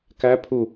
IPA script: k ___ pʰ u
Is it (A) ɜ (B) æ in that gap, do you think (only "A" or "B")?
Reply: B